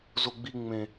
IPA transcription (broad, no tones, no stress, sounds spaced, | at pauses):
z o ɡ͡b i ŋ͡m ẽ